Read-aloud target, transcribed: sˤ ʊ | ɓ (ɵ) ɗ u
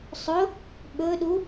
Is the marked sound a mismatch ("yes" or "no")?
no